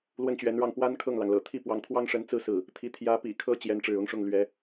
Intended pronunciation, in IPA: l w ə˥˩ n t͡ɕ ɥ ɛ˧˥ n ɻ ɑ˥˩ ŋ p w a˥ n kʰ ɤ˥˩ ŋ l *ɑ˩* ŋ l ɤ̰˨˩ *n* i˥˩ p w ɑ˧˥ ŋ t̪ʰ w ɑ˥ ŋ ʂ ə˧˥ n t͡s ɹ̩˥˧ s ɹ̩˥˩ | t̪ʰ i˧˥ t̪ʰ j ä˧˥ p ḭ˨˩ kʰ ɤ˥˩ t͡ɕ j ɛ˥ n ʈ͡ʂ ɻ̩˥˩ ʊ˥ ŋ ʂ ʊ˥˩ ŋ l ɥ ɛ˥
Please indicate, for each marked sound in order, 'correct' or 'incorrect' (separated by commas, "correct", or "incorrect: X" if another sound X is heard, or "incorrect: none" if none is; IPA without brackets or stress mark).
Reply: correct, incorrect: t̪ʰ